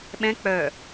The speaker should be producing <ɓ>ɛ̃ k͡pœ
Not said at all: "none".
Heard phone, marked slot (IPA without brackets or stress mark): ɓ